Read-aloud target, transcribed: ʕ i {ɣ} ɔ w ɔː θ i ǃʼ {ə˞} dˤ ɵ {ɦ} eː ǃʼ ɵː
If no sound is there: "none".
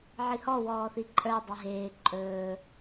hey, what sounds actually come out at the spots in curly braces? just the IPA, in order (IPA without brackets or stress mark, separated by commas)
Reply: h, ə˞, ɦ